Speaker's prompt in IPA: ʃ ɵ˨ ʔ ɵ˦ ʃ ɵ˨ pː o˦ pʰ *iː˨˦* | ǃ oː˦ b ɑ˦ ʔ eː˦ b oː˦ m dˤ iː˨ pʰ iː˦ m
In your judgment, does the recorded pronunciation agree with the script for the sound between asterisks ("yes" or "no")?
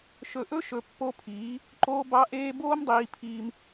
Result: yes